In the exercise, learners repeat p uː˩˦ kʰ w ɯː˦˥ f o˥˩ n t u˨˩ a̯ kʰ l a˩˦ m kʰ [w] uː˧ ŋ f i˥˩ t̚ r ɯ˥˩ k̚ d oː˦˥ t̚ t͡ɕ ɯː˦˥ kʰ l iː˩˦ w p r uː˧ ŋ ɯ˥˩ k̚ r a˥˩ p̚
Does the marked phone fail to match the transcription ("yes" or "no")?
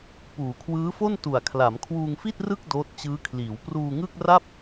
no